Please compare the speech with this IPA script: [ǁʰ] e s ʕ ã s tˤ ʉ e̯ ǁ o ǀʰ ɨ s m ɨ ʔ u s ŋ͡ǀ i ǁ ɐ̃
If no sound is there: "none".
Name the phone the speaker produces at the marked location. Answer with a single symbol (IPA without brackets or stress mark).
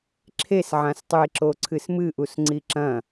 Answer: ǁʰ